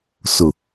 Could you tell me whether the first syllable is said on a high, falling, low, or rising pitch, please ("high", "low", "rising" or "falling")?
low